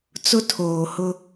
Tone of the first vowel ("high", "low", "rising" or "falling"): high